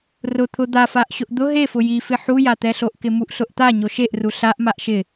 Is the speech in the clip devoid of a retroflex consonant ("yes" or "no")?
yes